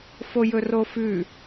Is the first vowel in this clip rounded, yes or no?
yes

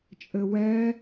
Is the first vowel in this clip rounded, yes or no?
no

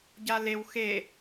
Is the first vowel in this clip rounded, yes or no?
no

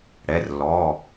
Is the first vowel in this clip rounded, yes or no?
no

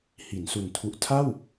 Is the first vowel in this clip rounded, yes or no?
no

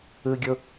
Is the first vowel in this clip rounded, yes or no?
no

